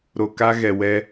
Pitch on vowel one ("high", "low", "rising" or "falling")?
low